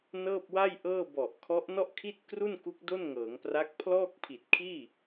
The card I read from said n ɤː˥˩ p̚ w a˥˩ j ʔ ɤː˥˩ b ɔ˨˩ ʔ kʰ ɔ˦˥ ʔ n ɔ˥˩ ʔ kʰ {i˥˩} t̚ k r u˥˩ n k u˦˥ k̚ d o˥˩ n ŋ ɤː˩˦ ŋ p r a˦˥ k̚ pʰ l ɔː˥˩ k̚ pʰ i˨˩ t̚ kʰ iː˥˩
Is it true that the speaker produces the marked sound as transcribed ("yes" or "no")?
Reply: yes